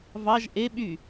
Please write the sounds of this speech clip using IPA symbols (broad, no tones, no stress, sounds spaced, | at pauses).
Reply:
v ɑ ʒ ʔ e ɓ y